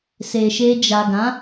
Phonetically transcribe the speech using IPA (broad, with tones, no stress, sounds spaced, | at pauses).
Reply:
s e˨ ʃ e˧ d͡ʒ a˨ ɡ ã˨˦